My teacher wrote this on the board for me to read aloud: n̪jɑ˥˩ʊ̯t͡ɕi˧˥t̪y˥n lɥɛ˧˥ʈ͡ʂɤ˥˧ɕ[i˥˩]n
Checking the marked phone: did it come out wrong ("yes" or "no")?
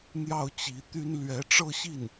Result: no